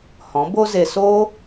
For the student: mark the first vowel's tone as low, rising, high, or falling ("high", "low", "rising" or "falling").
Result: rising